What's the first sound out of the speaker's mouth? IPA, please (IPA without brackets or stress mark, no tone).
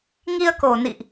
ŋ